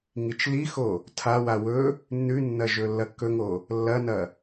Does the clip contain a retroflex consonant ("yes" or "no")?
no